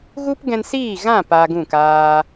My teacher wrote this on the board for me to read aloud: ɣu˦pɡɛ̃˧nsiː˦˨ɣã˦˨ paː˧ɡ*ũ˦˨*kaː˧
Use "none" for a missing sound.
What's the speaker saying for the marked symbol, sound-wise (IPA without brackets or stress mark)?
ũ˦˨